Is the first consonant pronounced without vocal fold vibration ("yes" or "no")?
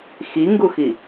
yes